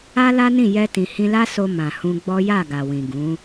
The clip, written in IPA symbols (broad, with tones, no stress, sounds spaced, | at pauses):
a˦ l a˦ n ĩ˦˨ j ɛ˧ t ĩ˨ h ĩ˧ l a˦ s o˧ m ã˨ h ũ˧ ɡ͡b ɔ˦ j a˦˨ ɡ a˨ w ĩ˨ ɡ ũ˨˦